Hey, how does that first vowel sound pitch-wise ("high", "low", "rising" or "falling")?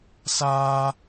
high